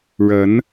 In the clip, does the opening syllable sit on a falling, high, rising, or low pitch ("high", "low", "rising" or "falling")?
rising